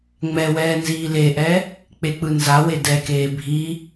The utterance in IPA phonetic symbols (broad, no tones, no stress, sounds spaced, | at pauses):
ŋ͡m ɛ w ɛː n z iː l e ʔ ɛ | k͡p e k͡p ɯ n z a w e d ɛ k eː bʱ i